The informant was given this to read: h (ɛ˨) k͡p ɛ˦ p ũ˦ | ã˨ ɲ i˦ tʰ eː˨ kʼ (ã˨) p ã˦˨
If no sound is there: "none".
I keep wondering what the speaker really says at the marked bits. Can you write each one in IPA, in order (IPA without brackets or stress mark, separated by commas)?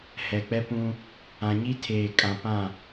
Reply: ɛ˨, ã˨